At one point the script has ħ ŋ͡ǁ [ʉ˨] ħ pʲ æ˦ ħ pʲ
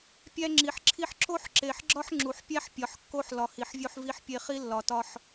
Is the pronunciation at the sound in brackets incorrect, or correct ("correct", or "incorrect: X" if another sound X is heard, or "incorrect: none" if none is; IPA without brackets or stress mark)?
incorrect: u˨